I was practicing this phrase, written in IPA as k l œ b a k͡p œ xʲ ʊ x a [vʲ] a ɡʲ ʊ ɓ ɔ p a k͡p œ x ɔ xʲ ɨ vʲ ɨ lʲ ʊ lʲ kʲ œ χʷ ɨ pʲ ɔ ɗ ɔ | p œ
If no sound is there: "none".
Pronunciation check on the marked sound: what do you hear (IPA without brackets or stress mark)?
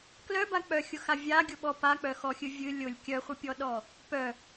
vʲ